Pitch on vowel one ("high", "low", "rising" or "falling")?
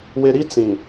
low